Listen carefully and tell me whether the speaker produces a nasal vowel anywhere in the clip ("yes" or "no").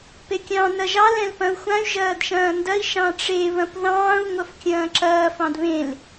yes